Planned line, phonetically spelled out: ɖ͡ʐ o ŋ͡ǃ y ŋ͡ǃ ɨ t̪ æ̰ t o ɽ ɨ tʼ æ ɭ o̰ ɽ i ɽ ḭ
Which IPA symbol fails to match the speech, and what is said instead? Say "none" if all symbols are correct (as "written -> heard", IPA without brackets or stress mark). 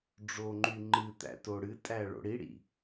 none